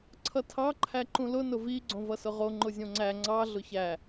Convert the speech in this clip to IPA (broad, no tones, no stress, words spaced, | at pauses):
ǀʰʌtʰɑ ǃʰæǃũlʊ nʊvi ɡ͡ǀõvʌsʊʁo ŋ͡ǃʊzʲõŋ͡ǀæ ŋ͡ǀɑ ɮʊçæ